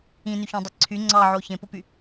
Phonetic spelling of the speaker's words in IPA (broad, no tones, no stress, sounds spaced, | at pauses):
ĩ n y ç õ dˤ e ǀʰ y ŋ͡ǀ ɑ ʕ o ç ẽ p o p y